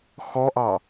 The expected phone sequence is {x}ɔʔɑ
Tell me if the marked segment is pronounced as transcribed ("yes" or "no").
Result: yes